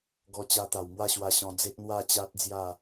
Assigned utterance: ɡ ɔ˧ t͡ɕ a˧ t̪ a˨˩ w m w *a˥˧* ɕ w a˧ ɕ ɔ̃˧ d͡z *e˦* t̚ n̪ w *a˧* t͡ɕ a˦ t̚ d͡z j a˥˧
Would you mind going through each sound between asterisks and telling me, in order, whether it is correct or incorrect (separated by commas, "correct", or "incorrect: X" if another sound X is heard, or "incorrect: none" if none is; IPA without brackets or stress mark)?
correct, correct, incorrect: a˥˧